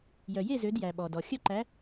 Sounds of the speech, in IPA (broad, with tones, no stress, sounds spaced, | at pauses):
j œ˨ j e˥˧ z ø˧˥ d j æ˨ ɓ ɔ˨ d ɔ˨ xʲ œ˥˧ ǃ æ˧˥